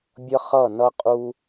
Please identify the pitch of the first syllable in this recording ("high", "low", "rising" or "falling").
high